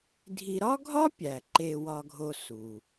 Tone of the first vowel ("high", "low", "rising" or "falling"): low